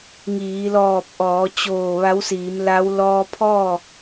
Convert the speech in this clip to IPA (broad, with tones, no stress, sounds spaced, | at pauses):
ŋ iː˩˧ l ɔː˧˩ p̚ ʔ ɔː˩˧ t͡ɕ oː˧˩ ʋ a˧˥ w s iː˩˧ m l a˧˥ w l ɔː˧ pʰ ɔː˥˨